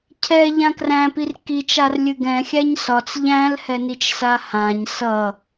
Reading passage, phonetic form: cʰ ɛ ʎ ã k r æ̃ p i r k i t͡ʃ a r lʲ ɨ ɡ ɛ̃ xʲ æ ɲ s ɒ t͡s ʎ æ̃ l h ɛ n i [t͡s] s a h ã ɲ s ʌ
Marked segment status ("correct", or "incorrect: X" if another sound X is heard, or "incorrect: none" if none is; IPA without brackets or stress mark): incorrect: t͡ʃ